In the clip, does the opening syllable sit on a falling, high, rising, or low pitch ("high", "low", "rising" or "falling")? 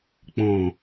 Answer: low